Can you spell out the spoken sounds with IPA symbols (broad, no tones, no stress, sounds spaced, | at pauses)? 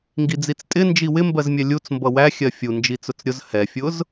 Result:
ŋ ɡ i d͡z i t͡s tʼ ɪ n d͡ʒ i w ɪ m b ɜ z mʲ ɛ lʲ u t͡s m b ʌ w æ xʲ ɜ fʲ u n d͡ʒ i t͡s ʊ t͡s ɾʲ ʊ z h ɛ fʲ ʊ z